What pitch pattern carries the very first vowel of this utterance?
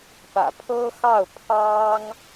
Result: low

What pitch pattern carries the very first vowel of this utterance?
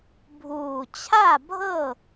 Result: low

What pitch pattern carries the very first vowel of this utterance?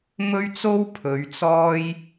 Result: high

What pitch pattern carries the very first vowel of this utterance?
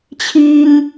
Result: high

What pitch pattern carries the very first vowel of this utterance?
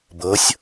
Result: rising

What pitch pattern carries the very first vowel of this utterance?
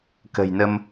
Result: low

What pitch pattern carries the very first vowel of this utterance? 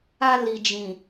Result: high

